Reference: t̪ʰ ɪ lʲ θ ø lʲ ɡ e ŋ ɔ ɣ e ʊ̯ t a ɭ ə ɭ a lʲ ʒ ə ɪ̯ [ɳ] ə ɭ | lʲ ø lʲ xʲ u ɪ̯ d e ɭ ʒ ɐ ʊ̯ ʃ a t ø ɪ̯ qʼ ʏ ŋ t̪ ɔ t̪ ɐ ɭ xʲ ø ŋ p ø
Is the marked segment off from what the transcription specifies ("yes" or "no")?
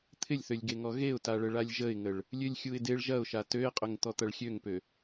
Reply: yes